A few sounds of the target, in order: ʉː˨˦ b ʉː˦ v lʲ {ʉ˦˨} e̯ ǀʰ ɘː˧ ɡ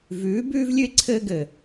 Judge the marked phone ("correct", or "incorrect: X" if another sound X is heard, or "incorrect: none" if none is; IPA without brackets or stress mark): incorrect: ʉ˦